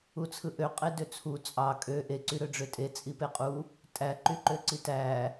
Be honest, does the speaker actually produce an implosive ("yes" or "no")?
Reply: no